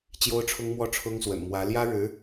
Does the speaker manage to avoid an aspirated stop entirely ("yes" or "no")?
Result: no